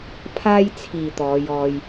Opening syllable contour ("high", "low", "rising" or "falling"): high